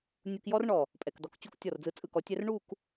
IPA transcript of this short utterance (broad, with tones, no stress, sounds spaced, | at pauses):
nʲ u˧ k j ɔ˥ r ɳ ɔ˧˩ | pʼ ɛ˧˩ k d ɔ˧˩ k t͡ɕ u˥˧ k tʲ ɔ˧˩ r d͡z ɯ˧˩ t͡sʼ ɯ˧ k ɔ˩˧ tʲ ɛ˥ r ɳ u˥˧ k